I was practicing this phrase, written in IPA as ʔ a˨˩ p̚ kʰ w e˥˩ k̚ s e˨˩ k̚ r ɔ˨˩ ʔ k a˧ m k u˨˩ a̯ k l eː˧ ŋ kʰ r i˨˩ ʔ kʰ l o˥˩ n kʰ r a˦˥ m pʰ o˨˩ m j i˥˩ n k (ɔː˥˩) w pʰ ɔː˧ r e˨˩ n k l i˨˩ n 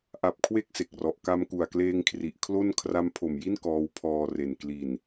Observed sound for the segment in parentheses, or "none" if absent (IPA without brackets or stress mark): ɔː˦˥